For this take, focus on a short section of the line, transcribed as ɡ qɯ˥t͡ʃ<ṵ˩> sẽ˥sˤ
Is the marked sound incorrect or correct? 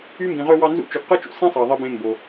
correct